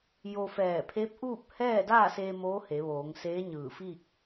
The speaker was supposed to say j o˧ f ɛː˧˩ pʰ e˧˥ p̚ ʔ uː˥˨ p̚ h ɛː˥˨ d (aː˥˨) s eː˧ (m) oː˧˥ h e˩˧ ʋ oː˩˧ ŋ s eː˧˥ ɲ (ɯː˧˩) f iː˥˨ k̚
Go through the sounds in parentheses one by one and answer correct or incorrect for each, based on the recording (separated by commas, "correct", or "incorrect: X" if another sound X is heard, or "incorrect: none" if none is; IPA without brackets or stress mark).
correct, correct, correct